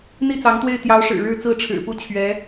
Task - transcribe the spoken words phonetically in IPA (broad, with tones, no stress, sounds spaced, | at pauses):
n̪ i˥˩ t͡s ɑ˧˥ ŋ t̪ w e˥˩ ɪ̯ t̪ j ɑ˧˥ ʊ̯ ʂ ɻ̩˨˩ ɻ ɻ̩˥˧ t͡s ɹ̩˥˩ ʈ͡ʂʰ ɻ̩˨˩ p u˥˩ t͡ɕʰ ɥ ɛ˧˥